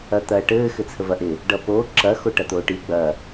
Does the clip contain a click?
yes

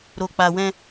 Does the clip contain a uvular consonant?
no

